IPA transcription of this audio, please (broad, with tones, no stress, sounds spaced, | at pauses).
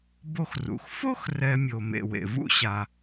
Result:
b o˦ x r ṵ˩ x f o˥ x r ɛ˨ mʲ o˩ m ḛ˩ w ḛ˩ v ṵ˥ ɕ a˩